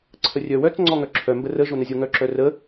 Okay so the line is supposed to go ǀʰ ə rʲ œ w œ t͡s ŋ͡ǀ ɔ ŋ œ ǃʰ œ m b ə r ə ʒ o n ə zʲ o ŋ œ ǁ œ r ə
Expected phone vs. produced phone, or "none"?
ǃʰ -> ǁʰ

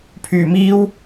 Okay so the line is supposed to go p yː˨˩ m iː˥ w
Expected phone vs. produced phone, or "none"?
p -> pʰ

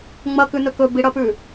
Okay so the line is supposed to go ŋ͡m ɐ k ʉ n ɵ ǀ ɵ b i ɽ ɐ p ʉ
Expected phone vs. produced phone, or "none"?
ǀ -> k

